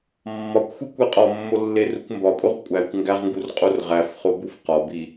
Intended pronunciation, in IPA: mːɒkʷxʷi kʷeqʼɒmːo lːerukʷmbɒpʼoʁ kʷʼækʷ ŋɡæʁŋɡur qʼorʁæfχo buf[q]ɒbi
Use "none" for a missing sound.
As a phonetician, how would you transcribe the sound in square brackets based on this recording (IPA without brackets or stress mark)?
q